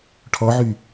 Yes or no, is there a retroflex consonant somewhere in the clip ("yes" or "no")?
yes